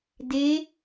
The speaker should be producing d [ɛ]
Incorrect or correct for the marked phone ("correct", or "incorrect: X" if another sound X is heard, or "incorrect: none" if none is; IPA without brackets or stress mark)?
incorrect: e